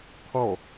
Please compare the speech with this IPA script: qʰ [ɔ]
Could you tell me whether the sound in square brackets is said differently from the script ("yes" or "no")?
no